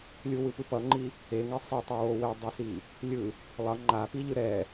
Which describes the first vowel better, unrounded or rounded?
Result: rounded